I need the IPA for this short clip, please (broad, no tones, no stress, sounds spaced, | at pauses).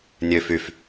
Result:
nʲ ø f y f